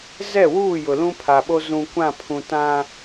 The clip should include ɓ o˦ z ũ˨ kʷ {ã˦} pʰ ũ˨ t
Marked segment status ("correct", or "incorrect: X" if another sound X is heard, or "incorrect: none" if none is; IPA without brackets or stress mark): incorrect: ã˦˨